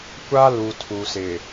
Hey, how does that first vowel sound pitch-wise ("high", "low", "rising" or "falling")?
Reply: high